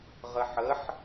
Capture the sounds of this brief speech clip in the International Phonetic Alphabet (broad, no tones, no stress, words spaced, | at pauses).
ʁəħəħ